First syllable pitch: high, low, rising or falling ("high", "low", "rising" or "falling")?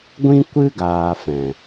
high